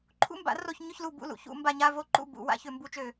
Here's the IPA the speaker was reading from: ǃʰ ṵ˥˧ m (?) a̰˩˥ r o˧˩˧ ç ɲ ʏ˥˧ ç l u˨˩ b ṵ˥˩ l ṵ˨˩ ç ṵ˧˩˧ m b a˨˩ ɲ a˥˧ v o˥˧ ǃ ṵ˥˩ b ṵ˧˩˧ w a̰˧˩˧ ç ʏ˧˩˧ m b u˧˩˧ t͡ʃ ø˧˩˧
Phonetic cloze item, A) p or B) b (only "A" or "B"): B